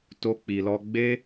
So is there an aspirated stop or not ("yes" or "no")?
no